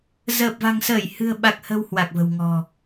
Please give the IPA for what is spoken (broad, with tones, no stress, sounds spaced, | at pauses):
z əː˨˩ p̚ v a̤˨˩ ŋ s əː˧˩ j h ɨ̤˨˩ ə̯ ɓ a˨˩ k̚ h ə̤˨˩ w h w a˨˩ k̚ v ə̤˨˩ w ŋ ɔ̤˨˩